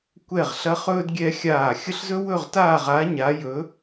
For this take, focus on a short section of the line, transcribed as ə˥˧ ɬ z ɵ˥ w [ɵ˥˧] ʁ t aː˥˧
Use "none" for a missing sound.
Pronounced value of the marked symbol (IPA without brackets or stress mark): ɵ˥˧